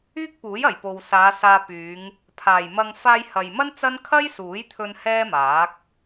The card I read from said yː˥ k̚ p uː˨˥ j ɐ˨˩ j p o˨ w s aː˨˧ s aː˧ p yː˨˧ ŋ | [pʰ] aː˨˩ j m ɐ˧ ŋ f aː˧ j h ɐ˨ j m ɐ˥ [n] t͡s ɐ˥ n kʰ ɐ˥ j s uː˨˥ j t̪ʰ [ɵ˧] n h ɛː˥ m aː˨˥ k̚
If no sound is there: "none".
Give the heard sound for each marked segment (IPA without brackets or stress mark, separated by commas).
pʰ, n, ɵ˧